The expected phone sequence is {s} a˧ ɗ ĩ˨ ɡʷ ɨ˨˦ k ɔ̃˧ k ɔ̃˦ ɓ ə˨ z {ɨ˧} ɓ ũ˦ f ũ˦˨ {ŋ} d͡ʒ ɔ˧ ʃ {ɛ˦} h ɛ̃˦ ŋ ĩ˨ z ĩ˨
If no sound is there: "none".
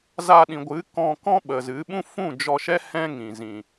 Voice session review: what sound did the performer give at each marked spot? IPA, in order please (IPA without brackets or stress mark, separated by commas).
z, ɨ˨˦, none, ɛ˦